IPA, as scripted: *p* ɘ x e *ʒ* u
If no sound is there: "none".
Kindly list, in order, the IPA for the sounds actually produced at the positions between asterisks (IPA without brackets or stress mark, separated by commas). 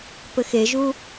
p, ʒ